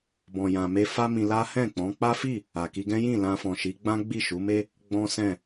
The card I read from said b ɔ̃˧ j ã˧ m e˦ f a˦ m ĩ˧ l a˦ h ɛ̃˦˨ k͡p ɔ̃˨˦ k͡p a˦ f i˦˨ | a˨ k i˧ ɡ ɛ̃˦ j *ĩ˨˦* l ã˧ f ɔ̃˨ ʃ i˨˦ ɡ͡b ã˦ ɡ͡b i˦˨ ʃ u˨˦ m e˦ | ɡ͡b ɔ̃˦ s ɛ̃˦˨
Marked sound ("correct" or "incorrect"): incorrect